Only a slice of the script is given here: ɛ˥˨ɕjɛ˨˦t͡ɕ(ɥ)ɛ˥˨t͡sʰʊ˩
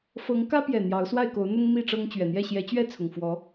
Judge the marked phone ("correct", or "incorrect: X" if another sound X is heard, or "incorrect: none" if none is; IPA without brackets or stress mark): correct